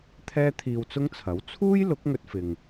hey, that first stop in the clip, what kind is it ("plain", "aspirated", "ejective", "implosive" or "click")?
aspirated